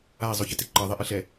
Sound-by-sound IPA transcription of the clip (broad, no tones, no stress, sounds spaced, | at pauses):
a i̯ zˤ o ç ɨ t e ǃ ɐ ðˤ e ʔ ɨ ɬ ɛ